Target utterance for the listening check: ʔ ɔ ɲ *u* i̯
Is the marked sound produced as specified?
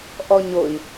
no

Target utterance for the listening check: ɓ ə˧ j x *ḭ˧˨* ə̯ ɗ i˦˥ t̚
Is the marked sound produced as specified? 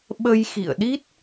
yes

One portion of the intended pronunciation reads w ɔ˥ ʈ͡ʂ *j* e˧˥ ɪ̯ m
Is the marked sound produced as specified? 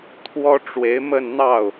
no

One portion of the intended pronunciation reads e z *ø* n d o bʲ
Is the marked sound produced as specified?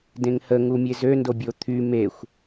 yes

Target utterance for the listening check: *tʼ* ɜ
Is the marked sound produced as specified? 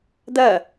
no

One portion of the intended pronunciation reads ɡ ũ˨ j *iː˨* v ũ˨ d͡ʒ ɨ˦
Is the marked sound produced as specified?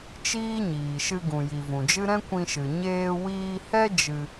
no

